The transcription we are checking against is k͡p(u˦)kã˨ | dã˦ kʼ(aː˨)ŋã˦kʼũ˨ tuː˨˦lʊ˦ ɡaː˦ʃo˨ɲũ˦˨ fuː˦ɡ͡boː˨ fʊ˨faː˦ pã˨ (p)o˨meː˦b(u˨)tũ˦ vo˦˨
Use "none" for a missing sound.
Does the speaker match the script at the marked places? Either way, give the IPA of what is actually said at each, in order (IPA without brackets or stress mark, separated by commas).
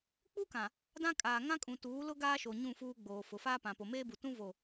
u˦, aː˨, p, u˨